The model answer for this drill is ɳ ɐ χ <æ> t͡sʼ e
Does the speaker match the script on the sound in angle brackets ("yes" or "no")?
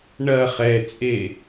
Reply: no